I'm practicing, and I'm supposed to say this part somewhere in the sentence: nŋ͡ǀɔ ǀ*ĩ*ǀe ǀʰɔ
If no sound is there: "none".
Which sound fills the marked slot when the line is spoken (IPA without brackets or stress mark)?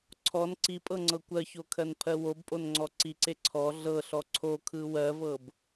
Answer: i